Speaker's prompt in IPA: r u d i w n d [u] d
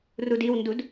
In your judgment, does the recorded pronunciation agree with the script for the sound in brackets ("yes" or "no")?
yes